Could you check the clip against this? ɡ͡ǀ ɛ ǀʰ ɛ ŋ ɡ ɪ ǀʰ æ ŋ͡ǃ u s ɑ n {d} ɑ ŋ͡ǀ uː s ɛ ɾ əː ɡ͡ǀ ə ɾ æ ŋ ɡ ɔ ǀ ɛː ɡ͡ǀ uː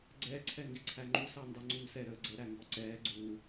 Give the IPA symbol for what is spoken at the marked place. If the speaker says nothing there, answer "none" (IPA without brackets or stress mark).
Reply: d